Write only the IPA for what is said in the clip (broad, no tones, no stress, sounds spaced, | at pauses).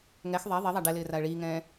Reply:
ŋ ɛ x ðˤ ɛ ðˤ i ðˤ a ɖ ɛ l ɪː r a ə̯ ɭ iː ŋ ɛ̃ː